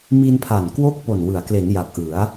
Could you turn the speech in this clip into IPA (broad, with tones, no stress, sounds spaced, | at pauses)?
m i˧ n pʰ a˨˩ n k w o˥˩ k̚ p o˨˩ n w ɯ˩˦ a̯ k l e˩˦ n j a˨˩ k̚ ʔ ɯ˩˦ a̯